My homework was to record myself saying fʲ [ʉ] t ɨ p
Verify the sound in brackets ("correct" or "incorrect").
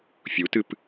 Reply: incorrect